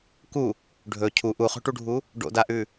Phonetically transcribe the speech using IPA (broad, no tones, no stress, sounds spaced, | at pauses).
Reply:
k u | ɖʱ ɵ cʰ u ʔ u χ o̤ ʈ u ɖʱ u | ɖ o̰ d a ʔ ʉ